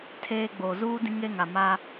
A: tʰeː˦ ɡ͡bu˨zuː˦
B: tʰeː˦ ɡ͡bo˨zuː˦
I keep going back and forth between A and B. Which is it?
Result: B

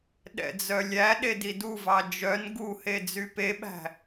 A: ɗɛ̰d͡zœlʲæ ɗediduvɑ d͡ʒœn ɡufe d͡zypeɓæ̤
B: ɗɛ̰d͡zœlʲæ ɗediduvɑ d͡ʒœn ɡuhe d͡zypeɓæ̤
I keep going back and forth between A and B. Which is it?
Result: B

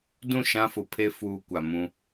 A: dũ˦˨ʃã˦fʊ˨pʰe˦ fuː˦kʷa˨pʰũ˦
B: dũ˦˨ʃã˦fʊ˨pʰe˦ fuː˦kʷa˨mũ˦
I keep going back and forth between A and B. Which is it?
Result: B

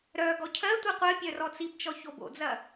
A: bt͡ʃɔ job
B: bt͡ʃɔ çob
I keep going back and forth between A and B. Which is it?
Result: B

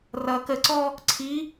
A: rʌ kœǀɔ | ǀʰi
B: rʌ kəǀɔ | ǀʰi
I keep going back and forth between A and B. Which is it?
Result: B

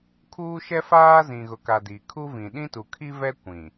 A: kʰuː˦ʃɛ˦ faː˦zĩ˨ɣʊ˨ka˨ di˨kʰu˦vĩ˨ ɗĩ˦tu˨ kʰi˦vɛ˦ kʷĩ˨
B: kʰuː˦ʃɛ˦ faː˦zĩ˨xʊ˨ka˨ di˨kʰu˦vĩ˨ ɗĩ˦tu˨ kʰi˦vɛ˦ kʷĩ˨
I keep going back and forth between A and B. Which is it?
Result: A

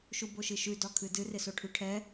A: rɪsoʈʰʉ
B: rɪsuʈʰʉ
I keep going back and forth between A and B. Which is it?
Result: A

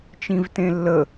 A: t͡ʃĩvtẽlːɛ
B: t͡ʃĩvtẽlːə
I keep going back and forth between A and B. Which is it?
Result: B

